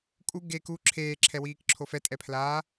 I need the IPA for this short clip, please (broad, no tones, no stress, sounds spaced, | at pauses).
kʼ u ɡ e k u ǁʰ eː ǁʰ ɛ w iː k ǁʰ o f ɛ tʼ ɛ pʰ l aː